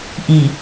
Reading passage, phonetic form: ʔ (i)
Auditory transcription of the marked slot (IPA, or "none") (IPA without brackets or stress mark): i